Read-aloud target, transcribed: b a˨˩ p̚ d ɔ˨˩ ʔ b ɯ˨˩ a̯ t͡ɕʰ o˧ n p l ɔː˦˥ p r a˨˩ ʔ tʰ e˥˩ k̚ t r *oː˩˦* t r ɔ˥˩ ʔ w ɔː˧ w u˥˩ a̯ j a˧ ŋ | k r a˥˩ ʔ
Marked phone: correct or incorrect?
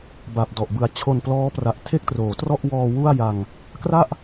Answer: correct